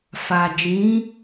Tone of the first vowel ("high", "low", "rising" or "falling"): low